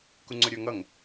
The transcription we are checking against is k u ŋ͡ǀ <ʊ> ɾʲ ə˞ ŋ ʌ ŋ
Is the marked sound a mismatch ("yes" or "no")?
no